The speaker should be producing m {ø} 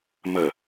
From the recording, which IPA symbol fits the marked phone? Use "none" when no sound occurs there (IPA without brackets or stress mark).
ə